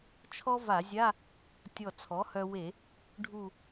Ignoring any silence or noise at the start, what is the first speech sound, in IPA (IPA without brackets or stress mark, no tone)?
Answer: t͡ʃʰ